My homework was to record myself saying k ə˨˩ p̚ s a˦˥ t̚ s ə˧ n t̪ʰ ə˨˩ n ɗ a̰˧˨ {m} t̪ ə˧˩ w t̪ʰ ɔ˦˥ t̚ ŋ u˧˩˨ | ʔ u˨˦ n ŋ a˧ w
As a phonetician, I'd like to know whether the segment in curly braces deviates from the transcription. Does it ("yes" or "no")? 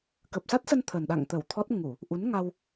yes